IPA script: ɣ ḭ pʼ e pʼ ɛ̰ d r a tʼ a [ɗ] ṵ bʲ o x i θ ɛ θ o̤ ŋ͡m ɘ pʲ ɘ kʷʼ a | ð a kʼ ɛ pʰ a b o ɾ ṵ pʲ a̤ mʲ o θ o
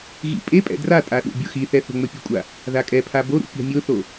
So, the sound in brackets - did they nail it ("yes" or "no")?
yes